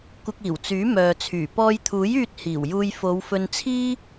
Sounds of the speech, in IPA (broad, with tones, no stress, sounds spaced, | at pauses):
kʷ ɪ˧ k̚ iː˨˩ w t͡s yː˨˥ m œː˨ t͡sʰ yː˨˩ p ɔː˧ j t̪ʰ uː˨˥ j yː˧ t̚ h iː˨˩ w j uː˧ j f o˨˧ w f ɵ˧ n t͡sʰ iː˥